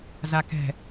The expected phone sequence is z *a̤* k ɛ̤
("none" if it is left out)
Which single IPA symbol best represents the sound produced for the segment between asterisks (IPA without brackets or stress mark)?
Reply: a